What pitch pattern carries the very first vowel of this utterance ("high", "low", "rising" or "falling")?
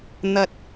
high